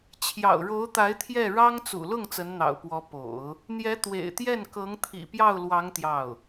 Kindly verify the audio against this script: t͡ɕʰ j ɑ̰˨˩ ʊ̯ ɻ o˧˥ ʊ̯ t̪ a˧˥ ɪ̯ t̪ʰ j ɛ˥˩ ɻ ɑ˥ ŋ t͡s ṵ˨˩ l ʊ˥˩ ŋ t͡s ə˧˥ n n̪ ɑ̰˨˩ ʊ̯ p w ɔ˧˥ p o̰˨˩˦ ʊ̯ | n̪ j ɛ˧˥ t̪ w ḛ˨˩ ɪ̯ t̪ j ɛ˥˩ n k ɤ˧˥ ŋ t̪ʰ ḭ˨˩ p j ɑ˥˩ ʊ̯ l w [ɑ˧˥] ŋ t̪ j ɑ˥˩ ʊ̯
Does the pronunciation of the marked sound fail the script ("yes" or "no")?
no